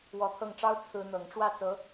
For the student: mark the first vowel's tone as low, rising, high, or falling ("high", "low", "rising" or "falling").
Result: rising